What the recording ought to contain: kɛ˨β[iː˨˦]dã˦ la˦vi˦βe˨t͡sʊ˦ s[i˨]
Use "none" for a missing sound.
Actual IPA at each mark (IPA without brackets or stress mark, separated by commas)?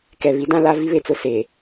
i˨˦, e˨